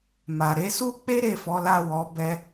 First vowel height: low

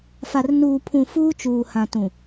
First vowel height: low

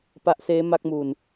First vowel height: low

